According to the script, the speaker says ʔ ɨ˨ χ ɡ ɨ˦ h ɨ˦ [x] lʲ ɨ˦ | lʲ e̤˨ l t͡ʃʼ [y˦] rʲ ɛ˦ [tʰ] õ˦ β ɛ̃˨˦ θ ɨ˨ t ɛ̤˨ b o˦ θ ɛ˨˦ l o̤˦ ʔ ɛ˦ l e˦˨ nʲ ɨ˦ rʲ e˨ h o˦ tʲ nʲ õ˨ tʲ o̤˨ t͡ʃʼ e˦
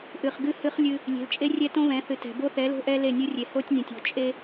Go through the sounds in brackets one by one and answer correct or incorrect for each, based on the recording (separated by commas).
incorrect, incorrect, incorrect